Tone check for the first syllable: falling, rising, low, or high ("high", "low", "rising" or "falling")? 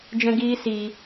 high